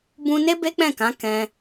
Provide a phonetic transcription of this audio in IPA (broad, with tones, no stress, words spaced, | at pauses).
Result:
bũ˧ne˦ be˦k͡pɛ̃˦˨kã˨˦ kɛ̃˧